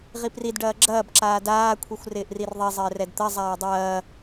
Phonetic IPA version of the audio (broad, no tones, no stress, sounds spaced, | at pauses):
ʁ i p r i d ɖ ɐː ɡ͡ǁ ɐː b ǁ aː d aː kʷʰ i xʷ r ɪː ʔ r i r ðˤ i zˤ ɪː r ɛ d t̪ ɐ zˤ aː dˤ ɐː